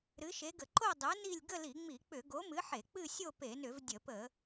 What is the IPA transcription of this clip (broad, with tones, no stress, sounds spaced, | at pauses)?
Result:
ɾ ɨ˨˥ ʃ e˨˥ ɡ ə˧˩˧ ǃ o˥˧ dˤ ɨ˨˥ n i˥˧ lʲ ɡ ə˥˧ l i˧˩˧ ŋ͡m i˧˩˧ k͡p ʏ˧˩˧ ɡ o˨˥ m ɨ˨˥ ħ e˧˩˧ k͡p ɨ˥˧ sʲ o˥˧ p e˧˩˧ n ʏ˧˩˧ v dʲ ə˧˩˧ p ə˧˩˧